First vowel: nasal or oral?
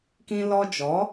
nasal